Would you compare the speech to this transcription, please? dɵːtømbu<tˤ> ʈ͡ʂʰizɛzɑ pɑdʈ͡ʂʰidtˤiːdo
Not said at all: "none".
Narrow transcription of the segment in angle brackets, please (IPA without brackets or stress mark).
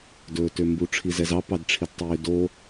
none